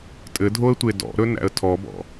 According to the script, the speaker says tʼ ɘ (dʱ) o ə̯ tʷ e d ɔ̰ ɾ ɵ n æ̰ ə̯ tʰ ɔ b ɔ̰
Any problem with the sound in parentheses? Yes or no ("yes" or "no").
no